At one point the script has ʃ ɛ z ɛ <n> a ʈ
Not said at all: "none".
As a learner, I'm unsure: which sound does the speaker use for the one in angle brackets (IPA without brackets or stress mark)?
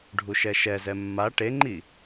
mː